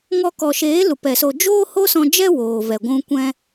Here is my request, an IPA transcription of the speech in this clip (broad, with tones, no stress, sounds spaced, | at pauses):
ŋ ɔ˧ k ɔ˨ ʃ eː˨˦ l u˨ p ɛ˨ s o˧ d͡ʒ oː˦ h o˦ s ɔ̃˧ d͡ʒ ɛ˦ w oː˨ v ɛ˨ ɡʷ ũ˧ kʷ ɛ̃˦